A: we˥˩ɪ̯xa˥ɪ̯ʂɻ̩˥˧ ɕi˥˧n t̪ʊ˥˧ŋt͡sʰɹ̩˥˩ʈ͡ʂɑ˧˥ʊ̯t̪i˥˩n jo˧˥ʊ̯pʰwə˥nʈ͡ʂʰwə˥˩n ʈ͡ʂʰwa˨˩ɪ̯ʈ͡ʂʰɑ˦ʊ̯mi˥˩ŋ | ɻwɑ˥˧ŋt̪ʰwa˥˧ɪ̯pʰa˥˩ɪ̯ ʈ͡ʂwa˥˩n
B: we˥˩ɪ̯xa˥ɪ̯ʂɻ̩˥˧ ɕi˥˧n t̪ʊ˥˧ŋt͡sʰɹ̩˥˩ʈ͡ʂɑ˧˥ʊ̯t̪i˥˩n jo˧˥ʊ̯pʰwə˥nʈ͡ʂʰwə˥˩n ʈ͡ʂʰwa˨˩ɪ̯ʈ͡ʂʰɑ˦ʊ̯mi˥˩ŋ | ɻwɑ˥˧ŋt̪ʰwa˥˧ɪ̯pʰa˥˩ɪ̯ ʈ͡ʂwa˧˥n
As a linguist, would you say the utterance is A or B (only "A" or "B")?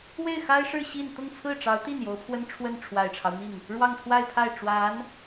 B